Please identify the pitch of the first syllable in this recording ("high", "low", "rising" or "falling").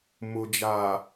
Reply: low